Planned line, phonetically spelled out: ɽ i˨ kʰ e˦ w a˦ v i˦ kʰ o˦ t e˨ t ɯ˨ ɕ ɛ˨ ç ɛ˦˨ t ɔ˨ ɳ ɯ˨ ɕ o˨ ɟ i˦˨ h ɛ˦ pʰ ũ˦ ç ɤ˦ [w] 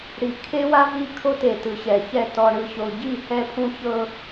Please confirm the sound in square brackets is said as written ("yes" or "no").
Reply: no